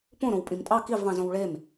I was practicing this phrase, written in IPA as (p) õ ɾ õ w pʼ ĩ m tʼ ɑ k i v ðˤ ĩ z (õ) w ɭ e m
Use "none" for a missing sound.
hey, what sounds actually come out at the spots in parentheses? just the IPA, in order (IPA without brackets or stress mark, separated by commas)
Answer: p, õ